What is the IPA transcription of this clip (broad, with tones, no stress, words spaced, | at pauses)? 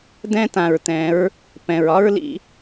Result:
dɛ̃˦tã˨ɹtɛ̃˨˦ɹ | pɛ̃˨ɹ ɒ˦ɹ lḭ˧